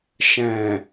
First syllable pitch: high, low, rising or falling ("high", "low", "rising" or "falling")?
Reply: low